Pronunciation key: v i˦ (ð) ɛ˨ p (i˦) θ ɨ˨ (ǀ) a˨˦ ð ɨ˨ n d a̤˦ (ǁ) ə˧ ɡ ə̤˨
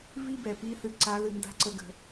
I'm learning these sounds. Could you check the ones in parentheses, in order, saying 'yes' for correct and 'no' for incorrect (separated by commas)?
no, no, yes, no